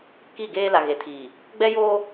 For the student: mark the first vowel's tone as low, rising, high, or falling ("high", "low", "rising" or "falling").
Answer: falling